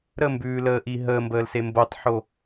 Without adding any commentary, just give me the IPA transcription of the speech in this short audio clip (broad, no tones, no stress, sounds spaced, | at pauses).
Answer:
ɾ ə m b ʉː l əː ʔ i ɦ əː m b əː l s e m b o tˤ ħ o